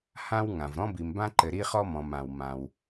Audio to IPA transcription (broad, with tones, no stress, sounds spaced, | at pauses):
h ã˧ w ŋ ã˩ v ɾ ɔ̃˧ b i˩ m b ã˧ ǃ ɘ˩ ɾ i˧ χ ɔ˧ m ɔ̃˩ m ã˩ w m ã˩ w